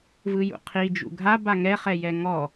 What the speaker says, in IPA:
vɯjṵqʰi d͡ʒṵɡʱa baŋɛχɛjɛ ŋɔ

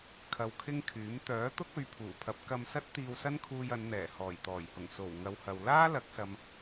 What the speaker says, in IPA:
kʰɐ˧wkʰɪ˥ŋkʰyː˨˥m t̪œː˨˥t̪ʊ˥k̚ ɵ˨˧ɥpʰuː˨˩pʰɐ˨˥p̚ kɐ˧msɐ˥t̚ t̪iː˧wsɐ˥nkʰuː˧j ɐ˨˧nn̪ɛː˨˩ hɔː˨˩jt̪ɔː˨˩jhʊ˨˩ŋ so˨˩w ŋɐ˨˧whɐ˨w laː˥lɐ˨˥k̚sɐ˨m

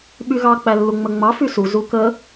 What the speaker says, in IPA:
ɓyɣɑ k͡pælːuŋ͡məŋ͡mɑ fysu zukə

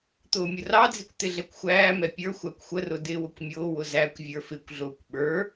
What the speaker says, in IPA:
t̪ʊːmʲʊrɑd͡zikʷ t̪ɪɮɛkʷxʷæːmɛ pʲə˞ xʷækʷxʷərʊ dɪːwʊkʷmʲʊːwʊ zækʷ vʲə˞fɪkʷɮʊːkʷ ɓə˞

